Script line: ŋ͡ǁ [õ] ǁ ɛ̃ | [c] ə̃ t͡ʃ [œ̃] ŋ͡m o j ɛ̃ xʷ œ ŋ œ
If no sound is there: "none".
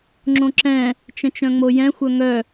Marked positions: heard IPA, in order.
õ, t͡ʃ, œ̃

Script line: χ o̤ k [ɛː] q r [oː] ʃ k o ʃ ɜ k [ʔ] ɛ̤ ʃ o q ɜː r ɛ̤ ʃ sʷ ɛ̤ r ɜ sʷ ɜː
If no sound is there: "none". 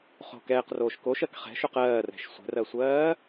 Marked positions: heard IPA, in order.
ɛː, oː, χ

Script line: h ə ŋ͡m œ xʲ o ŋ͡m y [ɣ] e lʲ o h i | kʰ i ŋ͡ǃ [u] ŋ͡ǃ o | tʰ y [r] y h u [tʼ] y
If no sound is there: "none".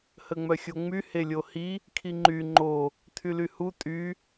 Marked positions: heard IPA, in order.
h, y, l, tʼ

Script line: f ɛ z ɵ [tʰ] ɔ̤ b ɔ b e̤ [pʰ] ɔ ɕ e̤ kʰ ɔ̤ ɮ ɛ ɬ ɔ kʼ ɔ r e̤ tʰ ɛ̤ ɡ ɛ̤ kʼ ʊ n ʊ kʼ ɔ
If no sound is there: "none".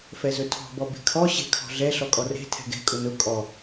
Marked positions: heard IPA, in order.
tʰ, kʰ

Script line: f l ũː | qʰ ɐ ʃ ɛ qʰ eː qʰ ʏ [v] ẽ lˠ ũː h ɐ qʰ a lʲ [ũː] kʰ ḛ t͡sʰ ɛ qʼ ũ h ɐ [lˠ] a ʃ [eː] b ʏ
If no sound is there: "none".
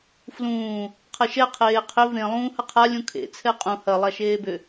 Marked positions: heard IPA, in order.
v, ũ, lˠ, eː

